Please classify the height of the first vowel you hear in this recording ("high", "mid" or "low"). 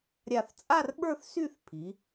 low